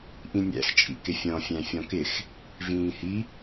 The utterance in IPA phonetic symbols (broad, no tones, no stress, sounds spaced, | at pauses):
ʔ ĩ nʲ æ̰ x t͡ʃʼ ḭ k ɪ fʲ ɔ̃ fʲ æ̃ fʲ ɔ̃ k ɪ x | v ĩː h i